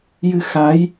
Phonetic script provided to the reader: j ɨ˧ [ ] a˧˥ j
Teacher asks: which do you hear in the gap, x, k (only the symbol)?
x